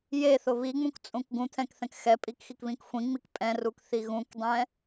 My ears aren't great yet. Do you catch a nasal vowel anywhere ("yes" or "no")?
yes